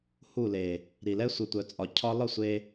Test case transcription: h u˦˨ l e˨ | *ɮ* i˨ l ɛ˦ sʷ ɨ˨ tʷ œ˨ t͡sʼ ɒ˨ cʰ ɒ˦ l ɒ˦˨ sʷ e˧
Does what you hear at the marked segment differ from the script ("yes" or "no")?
yes